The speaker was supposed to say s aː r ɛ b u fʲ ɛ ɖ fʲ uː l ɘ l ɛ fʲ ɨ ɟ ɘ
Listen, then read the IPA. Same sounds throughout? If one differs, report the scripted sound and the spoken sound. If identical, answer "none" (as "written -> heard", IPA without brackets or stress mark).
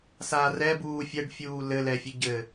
u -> uː